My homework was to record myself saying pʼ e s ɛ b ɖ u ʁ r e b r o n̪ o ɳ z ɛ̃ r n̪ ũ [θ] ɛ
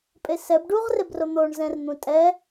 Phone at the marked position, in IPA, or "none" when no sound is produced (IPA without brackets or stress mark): tʼ